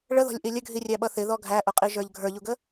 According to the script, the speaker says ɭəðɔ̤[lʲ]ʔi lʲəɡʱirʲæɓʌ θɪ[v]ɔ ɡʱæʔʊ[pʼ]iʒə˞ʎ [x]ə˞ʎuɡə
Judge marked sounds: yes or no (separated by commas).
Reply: yes, no, no, no